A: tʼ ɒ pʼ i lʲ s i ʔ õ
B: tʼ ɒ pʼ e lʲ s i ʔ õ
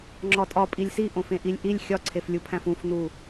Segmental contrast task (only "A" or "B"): A